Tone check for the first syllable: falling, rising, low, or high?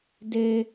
high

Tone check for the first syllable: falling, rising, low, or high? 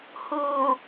low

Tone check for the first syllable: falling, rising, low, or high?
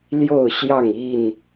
falling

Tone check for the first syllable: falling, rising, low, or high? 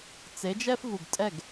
rising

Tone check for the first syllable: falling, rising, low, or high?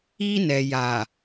high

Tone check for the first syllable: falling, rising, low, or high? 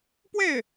falling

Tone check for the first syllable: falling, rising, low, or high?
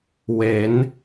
rising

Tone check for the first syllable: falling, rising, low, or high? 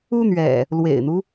high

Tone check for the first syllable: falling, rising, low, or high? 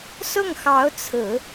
falling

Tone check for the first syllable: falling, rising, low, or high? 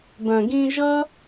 low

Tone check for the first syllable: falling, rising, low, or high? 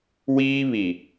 high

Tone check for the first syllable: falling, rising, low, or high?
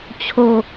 low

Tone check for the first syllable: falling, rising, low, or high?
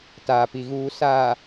low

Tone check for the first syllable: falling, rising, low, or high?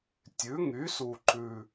rising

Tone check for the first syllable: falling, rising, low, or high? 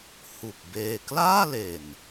low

